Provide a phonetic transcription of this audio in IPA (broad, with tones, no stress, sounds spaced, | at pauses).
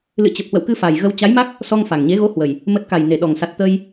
l ɨ̰˧˨ t͡ɕ ə˨˩ p̚ h w ə̰˧˨ w k ɨ˧ f a˨˩ j ɣ ə˧ w t͡ɕ a˨˦ j m a˦˥ k̚ | s ɔ˧ ŋ f a˨˩ ŋ ɲ e˨˦ ɣ o˨˦ h w ə˨˩ j | m ə˨˩ t̚ k a˨˩ j n e˨˩ ɗ ɔ˨˩ ŋ s a˨˩ t̚ t̪ ə˧ j